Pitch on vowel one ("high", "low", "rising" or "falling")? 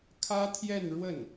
high